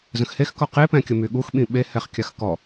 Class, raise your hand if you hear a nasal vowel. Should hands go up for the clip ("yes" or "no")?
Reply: yes